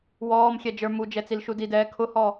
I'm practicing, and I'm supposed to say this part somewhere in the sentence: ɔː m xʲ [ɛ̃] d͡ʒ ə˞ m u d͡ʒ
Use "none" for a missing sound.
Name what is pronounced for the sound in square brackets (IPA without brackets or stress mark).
ɛ